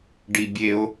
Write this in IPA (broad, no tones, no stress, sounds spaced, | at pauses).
ɖ i bʲ e o̯